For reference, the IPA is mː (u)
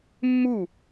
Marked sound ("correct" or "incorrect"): correct